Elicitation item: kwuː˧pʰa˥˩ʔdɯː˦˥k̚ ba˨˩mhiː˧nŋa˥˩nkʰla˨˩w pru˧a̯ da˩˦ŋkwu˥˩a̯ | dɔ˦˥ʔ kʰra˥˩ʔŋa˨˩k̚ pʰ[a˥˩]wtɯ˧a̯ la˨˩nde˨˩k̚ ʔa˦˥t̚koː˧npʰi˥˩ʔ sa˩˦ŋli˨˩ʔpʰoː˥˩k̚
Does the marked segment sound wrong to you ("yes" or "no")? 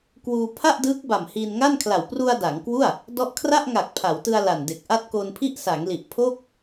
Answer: yes